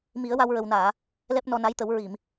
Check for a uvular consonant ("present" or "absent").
absent